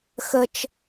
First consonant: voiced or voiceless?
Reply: voiceless